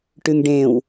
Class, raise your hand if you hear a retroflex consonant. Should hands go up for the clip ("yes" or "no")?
yes